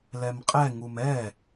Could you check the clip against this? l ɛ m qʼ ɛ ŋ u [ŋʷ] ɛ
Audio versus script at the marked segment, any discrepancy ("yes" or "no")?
yes